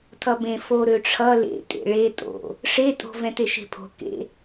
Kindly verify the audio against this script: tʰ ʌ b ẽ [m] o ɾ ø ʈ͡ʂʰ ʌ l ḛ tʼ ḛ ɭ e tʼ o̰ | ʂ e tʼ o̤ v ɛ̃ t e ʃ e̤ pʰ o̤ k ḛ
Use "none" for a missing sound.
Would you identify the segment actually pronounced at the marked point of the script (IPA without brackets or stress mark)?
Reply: f